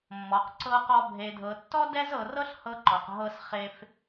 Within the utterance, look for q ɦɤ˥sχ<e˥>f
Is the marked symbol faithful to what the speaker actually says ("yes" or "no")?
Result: yes